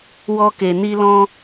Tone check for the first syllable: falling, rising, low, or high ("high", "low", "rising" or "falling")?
high